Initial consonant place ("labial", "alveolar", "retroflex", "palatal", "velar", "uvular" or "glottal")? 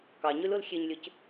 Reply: velar